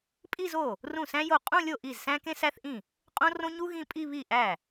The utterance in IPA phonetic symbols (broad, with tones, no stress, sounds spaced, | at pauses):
pʼ i˥˧ z o˥˩ | r ũ˥˩ s æ̃˥ j o˥˩ qʼ ũ˥˧ lʲ o˥˩ ʔ i˥˩ z s æ̃˥ k ẽ˥ s æ˥ θ ʔ ĩ˥˩ | qʼ õ˥ r õ˥ ɲ u˥ ɣ ĩ˥˧ pʼ i˥˧ β i˥˩ ʔ æ˥˩